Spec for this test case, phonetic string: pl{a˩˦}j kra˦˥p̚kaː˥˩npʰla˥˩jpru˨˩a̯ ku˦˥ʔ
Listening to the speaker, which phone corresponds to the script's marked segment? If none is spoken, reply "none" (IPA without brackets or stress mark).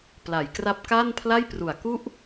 a˩˦